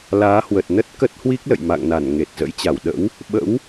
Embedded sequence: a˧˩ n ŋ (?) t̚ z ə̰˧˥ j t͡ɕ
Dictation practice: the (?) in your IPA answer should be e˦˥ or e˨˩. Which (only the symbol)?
e˨˩